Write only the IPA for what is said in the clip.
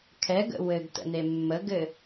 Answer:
kʰ ɛ ɡ ə̰ w ɘ ɡ t ə̰ n e mː ə ɡ ɘ

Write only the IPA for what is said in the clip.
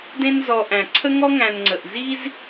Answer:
d ẽ˦ n z ɔ˨ ʔ æ̃˩ ǀʰ ə˥ ŋ ɔ˥ ŋ æ̃˨ n ŋ͡ǀ ə˩ ʔ z i˦ z

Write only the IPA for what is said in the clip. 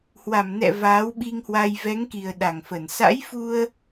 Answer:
h w a˧˩ m n ɛ̰˧˨ v aː˨˦ w ɓ i˧ ŋ h w a˧ j v ɛ˨˦ ŋ k i˨˩ ə̯ ɗ a˧˩ ŋ f ə˧˩ n s a̰˧˥ j f u˧ ə̯

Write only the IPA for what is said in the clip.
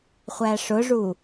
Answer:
χʷ æ ʂ ʊ ʐ u

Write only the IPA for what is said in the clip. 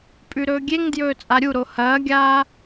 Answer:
pʼ ʉ ɾ ɵː ɡʲ e ŋ d j ɵː t͡sʼ a ɾʲ u ɾ o h ɐː ɡʲ aː

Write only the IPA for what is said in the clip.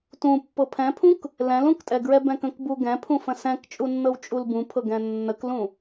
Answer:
t ũ pː ɤ pʰ ɛ̃ pʰ ũ k | l ɛ̃ l ũ k tʼ ɛ ɡ ɹ ɛ b ɛ̃ k ə̃ k b u ɡ ɛ̃ pʰ ũ f ə̃ s ɛ̃ k t͡ʃʼ u nː ɤ w t͡ʃʼ u l b ũ pʰ ɤ ɡ ɛ̃ nː ə k l ũ

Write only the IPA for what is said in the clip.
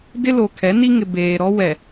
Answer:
d ɪ˦ l o˨ kʰ ɛ˨˦ n i˦ ŋ ɪ˨ b eː˨ ɾ ɔ˦ w ɛ˨

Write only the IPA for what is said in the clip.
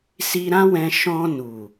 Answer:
s i˧ ɾ ã˦ w ɛ̃˧ ʃ ɔ̃˧ n u˨

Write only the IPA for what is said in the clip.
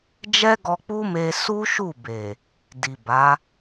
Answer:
d͡ʒ ɛ˦ ɡ ɔ˧ k͡p u˦ m e˧ s u˦ ʃ u˦˨ b e˨ | d i˨ b a˨˦

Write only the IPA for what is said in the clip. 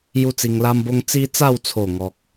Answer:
j u˦ t͡s i˧ ŋ l a˦ m b o˦ ŋ t͡s i˦ t͡s a˥˧ w t͡sʰ o˨˩ ŋ ɔ˨ k̚

